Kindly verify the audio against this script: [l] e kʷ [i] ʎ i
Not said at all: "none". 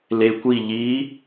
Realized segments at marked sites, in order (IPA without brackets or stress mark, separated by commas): l, i